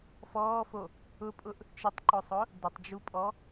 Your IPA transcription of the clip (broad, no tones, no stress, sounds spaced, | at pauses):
f ɔː f o | ʊ pʼ ʊ ʔ | t͡ʃ ɪ tˤ ǃ ʊ sˤ ʊ | d ɪ tˤ d͡ʒ u pʼ ɔ